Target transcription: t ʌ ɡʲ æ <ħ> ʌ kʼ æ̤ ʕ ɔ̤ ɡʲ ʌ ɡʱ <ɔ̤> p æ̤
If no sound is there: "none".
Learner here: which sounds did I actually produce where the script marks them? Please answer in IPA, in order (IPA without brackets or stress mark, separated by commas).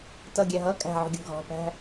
ɦ, ɔ̤